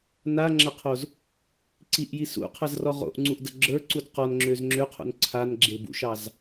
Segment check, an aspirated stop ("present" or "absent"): present